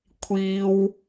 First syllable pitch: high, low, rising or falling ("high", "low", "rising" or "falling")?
high